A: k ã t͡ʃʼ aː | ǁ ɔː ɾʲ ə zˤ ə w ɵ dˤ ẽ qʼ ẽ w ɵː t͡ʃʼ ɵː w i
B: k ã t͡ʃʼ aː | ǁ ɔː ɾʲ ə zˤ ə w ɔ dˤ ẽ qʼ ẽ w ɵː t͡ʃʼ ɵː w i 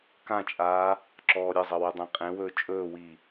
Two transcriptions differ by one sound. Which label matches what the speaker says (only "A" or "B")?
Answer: A